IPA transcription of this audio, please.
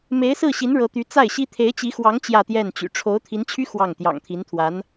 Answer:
me˧˥ɪ̯sɹ̩˥˩ɕi˧˥n ɻɤ˧˥t̪y˧˥ t͡sa˥˩ɪ̯ɕi˥ t̪ʰe˧˥ɪ̯t͡ɕi˧˥xwɑ˧˥ŋ t͡ɕjä˥˧t̪jɛ˥˩nt͡ɕy̰˨˩ ʈ͡ʂʰo˧˥ʊ̯t̪ʰi˧˥nt͡ɕʰy˥ xwɑ˥˩ŋ t̪jɑ̰˨˩ŋt̪ʰi˧˥nt̪ʰwa˧˥n

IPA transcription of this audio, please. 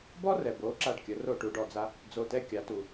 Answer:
bɔ˥rɛ˩ bo˩˥ ǁa˥˩ɖkʲə˩˥ ro˥˩ʈu˩˥ɖɔ˩d͡za˥ | d͡zo˧tɛ˥kʲa˩˥ tu˩

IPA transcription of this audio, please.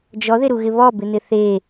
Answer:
d͡ʒɔðɪɾuɣɪ βɔbɪn̪ɪ θe

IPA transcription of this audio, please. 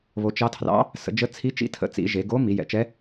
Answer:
βo˩˧t͡ʃɑ˧˥tʰrɑ̰˧˥ | sə̰˩˧d͡ʒə˧˥t͡sʰi˧˥t͡ʃḭ˧˥ tʰə̰˩˧t͡sḭ˩˧ ʒe˩˧ ɡo˧˥ mi˩˧jɛ̰˩˧t͡ʃɛ˧˥

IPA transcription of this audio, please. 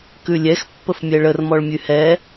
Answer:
kʉlʲɛx pːəfmʲɛɭər mɔɭmʲʉhɛ

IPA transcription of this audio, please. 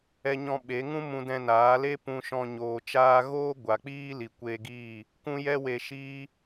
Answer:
ɛ˦ɲɔ̃˦ ɓe˨˦ŋũ˦ mũ˧dɛ̃˧naː˨˦le˦ pũ˧ʃɔ̃˧ ɲoː˨t͡ʃaː˧ɣoː˦ ɡʷa˨k͡piː˦li˨ kʷe˧ɡiː˦˨ | kũ˦jɛ˦we˧ʃiː˦

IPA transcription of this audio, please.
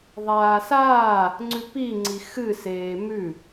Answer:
ðˤaːsaː | ŋ͡ǀʉpi ŋ͡ǀixɨseː mʉ

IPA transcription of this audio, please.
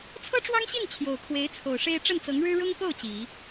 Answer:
t͡sʰɤ˥ʈ͡ʂwɑ˥ŋɕi˥˩n t͡ɕʰjo˨˩ʊ̯ kʰwe˧˥ɪ̯t͡sʰo˨˩ʊ̯ʂe˥ɪ̯ ʈ͡ʂə˥˩nt͡sɤ˧˥ŋɻɻ̩˥ ɻʊ˥ŋko˥˩ʊ̯ t͡ɕi˨˩˦

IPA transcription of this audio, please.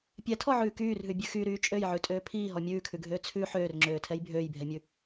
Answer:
pʲɛtʰɔʕʉː kyːrɦʉbʲʉ xyɾyː t͡ʃʼøjʕʉtʼøː pʰiːɦɔ mʲʉːkʰʉɡʱøː t͡sʰʉ ħøːrŋ͡ǁøːtʰɛj bʱøːjbʱɛmʲʉ

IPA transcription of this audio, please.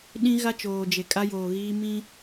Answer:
ɗĩ˦ɣa˦ t͡ʃoː˨d͡ʒe˨ kʼa˦joː˨ɣiː˦ mĩ˦

